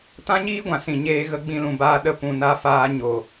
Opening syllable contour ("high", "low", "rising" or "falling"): high